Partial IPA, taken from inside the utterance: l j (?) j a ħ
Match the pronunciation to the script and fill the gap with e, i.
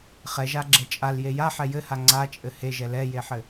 e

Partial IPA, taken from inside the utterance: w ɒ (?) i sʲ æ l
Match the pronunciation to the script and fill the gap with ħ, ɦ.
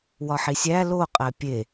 ħ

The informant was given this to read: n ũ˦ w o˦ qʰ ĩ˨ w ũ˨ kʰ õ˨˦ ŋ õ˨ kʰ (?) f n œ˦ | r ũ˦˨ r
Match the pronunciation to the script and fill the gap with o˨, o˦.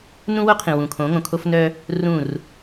o˦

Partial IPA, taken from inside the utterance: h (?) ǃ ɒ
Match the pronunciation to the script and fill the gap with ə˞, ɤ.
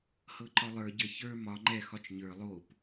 ɤ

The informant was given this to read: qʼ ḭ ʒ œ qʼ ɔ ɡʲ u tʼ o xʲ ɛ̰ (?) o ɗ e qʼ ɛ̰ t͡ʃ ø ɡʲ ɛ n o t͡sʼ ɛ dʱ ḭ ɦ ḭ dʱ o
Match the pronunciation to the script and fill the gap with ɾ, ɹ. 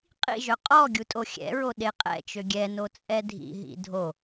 ɹ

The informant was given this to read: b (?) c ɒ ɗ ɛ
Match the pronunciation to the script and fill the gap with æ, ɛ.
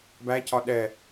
æ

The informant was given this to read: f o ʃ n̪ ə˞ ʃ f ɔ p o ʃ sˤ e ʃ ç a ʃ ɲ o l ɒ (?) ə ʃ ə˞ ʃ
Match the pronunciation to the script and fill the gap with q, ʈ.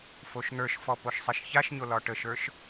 ʈ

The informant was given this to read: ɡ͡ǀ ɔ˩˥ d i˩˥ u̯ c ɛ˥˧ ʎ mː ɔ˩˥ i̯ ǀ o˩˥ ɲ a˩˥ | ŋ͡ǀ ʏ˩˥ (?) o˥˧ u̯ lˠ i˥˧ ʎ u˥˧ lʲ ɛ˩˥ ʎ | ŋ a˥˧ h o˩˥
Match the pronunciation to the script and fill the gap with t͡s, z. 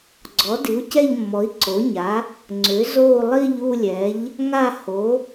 z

